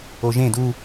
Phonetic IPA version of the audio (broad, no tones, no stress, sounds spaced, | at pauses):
o ʒ ẽ d u